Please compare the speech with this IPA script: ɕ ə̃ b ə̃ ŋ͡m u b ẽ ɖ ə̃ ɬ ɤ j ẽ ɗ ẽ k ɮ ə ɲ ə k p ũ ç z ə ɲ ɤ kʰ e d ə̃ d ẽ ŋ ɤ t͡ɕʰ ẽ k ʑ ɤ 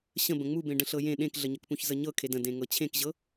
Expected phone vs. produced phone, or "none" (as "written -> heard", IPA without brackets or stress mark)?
none